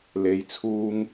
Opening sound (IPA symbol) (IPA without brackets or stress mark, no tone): l